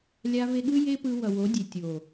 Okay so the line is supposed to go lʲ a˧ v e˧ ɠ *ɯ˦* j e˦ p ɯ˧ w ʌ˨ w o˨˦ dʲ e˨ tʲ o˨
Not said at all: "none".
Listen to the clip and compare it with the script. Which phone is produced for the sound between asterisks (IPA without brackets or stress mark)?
ɯ˦